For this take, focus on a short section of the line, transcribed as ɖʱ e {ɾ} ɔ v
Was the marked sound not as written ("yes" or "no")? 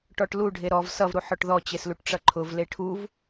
no